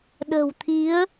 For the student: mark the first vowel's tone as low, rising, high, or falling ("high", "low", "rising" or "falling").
low